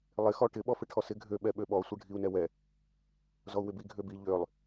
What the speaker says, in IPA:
lˠ ɪ x ɔ ʈ ɪ ɓ ɔ f ɪ ʈʰ ɔ s ɪ ɡʱ ø ɓ ɛ ɓ ø ɓ ɔ sʷ ɪ ɖʱ i u̯ n ɛ w ɛ | z ɔ u̯ w ɪ b i ɡʱ ø b i ʎ ø lˠ

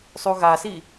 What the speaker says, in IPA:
sˤ u ɣ a s i

